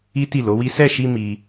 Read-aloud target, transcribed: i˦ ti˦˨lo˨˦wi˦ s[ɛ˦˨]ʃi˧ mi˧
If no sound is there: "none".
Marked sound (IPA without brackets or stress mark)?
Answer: ɛ˦˨